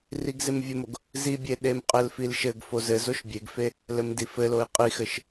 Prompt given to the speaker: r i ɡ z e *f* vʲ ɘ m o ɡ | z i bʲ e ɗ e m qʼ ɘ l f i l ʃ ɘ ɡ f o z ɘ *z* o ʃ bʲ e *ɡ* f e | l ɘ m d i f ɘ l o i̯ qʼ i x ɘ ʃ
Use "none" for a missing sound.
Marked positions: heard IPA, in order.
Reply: m, z, ɡ

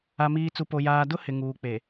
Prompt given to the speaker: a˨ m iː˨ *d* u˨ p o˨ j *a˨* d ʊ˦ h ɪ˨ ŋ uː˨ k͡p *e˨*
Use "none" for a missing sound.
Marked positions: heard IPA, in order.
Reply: t͡s, aː˨, e˨

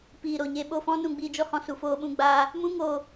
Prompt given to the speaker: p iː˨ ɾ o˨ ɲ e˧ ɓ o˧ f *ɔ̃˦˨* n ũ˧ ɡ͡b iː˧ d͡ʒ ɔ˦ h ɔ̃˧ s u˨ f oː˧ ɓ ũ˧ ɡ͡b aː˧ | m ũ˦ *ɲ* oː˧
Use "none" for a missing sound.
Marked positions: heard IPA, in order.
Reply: ɔ̃˦, ŋ

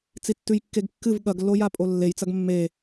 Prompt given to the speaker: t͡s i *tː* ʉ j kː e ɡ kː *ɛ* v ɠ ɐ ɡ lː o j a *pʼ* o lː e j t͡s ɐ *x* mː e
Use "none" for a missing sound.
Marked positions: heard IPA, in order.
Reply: tː, ɨ, pʼ, ɡ

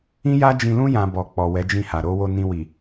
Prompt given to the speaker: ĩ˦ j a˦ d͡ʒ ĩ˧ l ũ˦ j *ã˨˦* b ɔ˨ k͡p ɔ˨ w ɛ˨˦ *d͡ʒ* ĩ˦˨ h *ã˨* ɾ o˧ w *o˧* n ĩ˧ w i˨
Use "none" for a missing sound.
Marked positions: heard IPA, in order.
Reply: ã˧, d͡ʒ, a˨, o˧

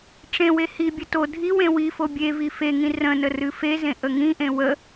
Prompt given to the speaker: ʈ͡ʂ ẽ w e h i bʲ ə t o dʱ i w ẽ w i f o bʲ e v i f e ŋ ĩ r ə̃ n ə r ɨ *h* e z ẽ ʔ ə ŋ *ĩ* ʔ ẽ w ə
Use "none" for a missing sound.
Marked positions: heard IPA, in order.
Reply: f, ĩ

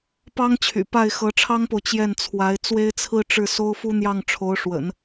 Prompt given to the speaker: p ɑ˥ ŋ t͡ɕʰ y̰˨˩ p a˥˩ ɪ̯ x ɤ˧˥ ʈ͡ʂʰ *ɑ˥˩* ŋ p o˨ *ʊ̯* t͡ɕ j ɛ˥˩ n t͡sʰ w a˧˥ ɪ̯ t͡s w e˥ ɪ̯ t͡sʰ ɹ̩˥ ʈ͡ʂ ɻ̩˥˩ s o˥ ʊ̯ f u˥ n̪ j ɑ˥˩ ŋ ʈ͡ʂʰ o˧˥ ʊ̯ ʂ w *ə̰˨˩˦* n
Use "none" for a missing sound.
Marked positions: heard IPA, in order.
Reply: ɑ˥, ʊ̯, ə̰˨˩˦

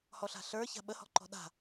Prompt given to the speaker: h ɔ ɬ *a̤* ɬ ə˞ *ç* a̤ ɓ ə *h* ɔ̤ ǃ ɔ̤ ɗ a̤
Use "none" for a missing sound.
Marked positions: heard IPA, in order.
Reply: a̤, ç, h

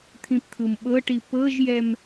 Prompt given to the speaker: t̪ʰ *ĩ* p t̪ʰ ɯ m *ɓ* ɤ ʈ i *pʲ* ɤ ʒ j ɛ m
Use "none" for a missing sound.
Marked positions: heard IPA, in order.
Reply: ĩ, ɓ, p

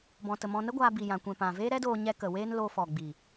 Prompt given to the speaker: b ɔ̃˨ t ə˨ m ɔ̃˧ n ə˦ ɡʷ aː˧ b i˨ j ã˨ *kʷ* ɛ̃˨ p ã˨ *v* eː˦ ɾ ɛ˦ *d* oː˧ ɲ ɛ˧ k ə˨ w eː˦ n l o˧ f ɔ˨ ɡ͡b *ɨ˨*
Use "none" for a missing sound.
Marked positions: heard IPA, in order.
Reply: kʷ, v, d, i˨

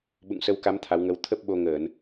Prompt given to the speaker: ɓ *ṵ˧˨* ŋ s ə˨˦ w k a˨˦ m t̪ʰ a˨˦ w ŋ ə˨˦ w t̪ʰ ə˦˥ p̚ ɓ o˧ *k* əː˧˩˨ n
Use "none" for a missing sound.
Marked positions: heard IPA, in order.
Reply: ṵ˧˨, ŋ

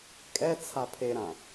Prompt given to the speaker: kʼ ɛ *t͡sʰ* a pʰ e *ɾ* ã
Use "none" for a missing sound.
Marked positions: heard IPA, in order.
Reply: t͡sʰ, ɾ

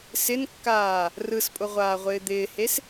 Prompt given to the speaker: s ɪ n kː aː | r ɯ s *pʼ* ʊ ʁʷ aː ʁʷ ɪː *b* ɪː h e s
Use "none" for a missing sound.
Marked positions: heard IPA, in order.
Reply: pʼ, d̪

